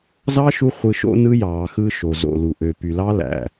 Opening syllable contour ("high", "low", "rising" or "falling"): high